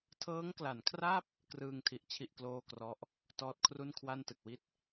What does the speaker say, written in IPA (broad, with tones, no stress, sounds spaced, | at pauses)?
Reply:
tʰ ɤː˦˥ ŋ k l a˩˦ n kʰ r a˥˩ p̚ | k r ɯː˧ ŋ tʰ i˨˩ ʔ t͡ɕʰ i˥˩ ʔ k l oː˥˩ k r ɔ˦˥ ʔ | t ɔː˦˥ t̚ kʰ r u˥˩ n kʰ w a˥˩ n t ɯ˨˩ k̚ w i˥˩ t̚